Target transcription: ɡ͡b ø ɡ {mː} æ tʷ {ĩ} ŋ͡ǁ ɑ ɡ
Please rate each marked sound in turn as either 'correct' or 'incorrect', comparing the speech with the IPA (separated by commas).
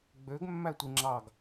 correct, incorrect